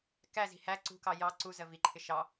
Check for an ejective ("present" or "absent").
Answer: absent